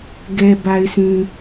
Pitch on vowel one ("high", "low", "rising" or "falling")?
low